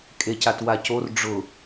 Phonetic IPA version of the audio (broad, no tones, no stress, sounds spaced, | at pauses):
kʼ e c a t w a c o r ɖ͡ʐ ʊ